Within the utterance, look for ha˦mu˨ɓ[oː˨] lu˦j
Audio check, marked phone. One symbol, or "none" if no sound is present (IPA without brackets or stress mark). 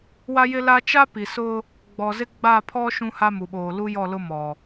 oː˨